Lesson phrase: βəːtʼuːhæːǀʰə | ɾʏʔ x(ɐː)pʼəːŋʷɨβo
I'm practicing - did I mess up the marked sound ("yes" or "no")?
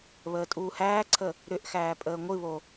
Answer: yes